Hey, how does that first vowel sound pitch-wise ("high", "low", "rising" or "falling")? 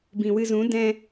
low